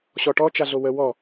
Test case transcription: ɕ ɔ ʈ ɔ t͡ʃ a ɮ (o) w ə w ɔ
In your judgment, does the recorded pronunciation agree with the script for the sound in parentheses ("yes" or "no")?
yes